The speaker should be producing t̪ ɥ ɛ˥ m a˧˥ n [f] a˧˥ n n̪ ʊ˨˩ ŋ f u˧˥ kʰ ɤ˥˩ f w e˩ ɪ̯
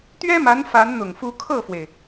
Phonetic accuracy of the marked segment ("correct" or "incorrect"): correct